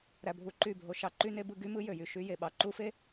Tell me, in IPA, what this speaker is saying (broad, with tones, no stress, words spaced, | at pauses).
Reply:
ɾæ˧bʱu˧ǃy˦˨bʱo˧ ʃɑ˨ǃy˧ne˧bɯ˧ ɡy˦mɯ˦jø˨jy˨ ʃy˧je˨ ɓɑ˨ǃu˦fe˦